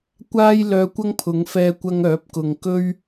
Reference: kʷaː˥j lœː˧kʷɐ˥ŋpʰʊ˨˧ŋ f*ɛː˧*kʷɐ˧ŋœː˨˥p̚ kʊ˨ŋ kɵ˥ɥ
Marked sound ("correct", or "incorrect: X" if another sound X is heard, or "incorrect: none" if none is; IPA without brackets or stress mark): correct